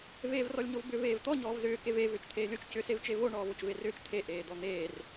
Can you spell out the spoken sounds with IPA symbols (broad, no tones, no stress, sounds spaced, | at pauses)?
v eː v r ɔ lʲ ɲ o v b ʏ v eː v t̪ ɔ ɲ ɔː v z ʏː k e v e v ʏː t͡ʃ t̪ʰ eː lʲ o t͡ʃ c ʏ s e v t͡ʃ e v o ɳ ɔː v o t͡ʃ v e r ʏː t͡ʃ t̪ʰ e ʔ eː d̪ ɔ n̪ eː r